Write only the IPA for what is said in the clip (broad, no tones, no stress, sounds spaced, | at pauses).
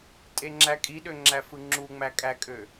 tʼ e ŋ͡ǁ æ kʼ i ɗ ø ŋ͡ǁ æ f ɯ ŋ͡ǁ u ŋ͡m æ kʼ æ kʼ ø